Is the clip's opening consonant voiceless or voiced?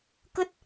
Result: voiceless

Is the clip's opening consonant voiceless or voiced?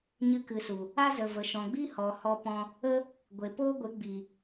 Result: voiced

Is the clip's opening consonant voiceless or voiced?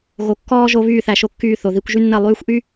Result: voiced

